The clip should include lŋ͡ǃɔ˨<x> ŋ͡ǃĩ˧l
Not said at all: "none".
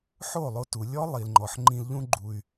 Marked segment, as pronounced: ħ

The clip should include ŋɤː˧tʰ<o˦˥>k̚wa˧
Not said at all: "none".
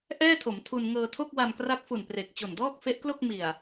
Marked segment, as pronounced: o˥˩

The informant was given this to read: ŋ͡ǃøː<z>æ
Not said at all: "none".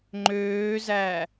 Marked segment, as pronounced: z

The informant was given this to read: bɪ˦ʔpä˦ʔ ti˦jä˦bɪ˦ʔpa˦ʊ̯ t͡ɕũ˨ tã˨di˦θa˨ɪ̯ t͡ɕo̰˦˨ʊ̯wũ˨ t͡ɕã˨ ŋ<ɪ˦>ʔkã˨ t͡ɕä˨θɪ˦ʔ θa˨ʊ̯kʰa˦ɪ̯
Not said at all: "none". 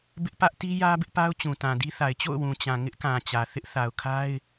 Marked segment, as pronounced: ɪ˦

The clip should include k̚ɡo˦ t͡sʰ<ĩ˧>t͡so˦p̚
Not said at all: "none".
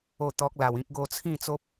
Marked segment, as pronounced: ĩ˥˧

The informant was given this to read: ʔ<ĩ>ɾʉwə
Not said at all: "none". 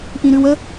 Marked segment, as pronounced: ĩ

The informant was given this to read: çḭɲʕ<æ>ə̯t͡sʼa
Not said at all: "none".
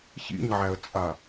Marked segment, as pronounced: æ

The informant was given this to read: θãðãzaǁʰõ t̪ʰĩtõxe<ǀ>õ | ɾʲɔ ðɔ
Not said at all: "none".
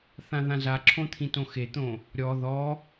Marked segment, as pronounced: t̪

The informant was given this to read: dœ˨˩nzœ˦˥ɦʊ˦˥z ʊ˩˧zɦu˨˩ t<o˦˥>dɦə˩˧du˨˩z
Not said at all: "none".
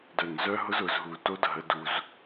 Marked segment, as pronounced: o˦˥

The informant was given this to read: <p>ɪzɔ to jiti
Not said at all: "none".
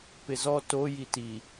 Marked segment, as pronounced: p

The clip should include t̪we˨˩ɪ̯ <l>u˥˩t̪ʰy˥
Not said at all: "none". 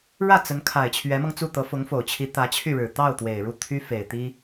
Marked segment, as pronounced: ɻ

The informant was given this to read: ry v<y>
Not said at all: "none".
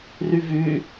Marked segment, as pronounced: y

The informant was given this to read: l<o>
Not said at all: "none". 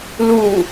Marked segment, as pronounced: u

